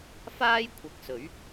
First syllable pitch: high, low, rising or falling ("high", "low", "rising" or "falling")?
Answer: high